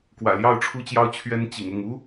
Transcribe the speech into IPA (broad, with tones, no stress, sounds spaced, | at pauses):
k w ä̰˨˩ l j ɑ˥˨ ʊ̯ ʈ͡ʂʰ u˦ t͡ɕ j ɑ˦ ʊ̯ t͡ɕʰ ɥ ɛ˦ n t͡ɕ ḭ˨˩ ŋ ʊ˥˨ ŋ u˦